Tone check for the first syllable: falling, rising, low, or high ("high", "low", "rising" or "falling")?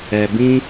low